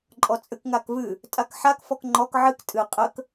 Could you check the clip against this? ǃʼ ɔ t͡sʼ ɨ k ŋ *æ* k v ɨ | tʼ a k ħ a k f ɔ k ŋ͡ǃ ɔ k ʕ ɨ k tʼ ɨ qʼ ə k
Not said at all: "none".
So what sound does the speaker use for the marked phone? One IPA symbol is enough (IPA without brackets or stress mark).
a